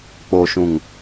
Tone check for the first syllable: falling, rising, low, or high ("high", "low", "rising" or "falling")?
low